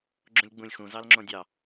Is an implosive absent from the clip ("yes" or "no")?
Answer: yes